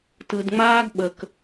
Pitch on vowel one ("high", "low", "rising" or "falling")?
low